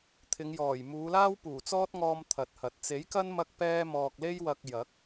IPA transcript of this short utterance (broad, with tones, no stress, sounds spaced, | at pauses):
t̪ʰ ɪ˨˧ ŋ j ɔː˨˩ j m uː˨˧ l aː˥ w p uː˨˩ t͡s ɔː˥ t̚ ŋ ɔː˥ m t̪ʰ ɐ˨˥ t̚ h ɐ˨ t̚ t͡s e˨˥ j k ɐ˥ n m ɐ˥ k̚ p ɛː˥ m ɔː˧ k̚ l e˥ j w ɐ˧ k̚ j ɐ˨˥ k̚